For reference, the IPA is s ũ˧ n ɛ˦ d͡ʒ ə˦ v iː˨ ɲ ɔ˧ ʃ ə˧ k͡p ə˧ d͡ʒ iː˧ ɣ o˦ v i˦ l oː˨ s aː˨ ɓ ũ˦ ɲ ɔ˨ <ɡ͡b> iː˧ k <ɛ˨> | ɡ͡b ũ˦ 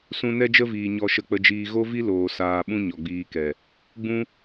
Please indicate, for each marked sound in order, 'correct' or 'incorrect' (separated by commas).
correct, correct